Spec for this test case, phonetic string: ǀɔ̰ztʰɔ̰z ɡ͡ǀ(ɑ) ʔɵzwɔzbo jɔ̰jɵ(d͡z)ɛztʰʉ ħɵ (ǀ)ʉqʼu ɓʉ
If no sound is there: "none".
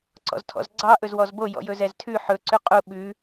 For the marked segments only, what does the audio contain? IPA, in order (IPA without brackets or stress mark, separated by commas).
ɑ, z, ǀ